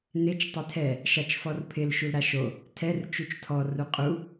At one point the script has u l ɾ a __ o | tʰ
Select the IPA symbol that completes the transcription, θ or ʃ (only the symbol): ʃ